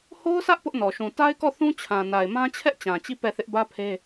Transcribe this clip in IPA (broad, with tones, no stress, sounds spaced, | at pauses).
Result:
h o˦ ʊ̯ s ä˦ ʔ p ʊ˦ ʔ n ɔ˨ ʃ ũ˨ t a˦ ɪ̯ k ɔ˦˨ θ ũ˦ t͡ɕʰ ã˨ n a˨ ɪ̯ m ã˦ t͡ɕʰ ɛ˦ ʔ t͡ɕ ã˨ t͡ɕ i˦˨ p ɛ˦˨ θ ɪ˦ ʔ b ä˦ pʰ e˦